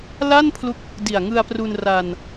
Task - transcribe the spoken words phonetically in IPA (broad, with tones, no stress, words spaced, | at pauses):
la˥˩npʰlu˦˥k̚ | di˨˩a̯ŋɯ˧a̯pru˧n ra˧n